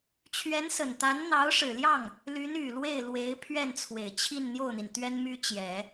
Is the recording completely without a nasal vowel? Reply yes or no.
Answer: yes